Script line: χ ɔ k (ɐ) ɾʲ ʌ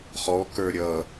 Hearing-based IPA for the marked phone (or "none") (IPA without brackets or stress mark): ə˞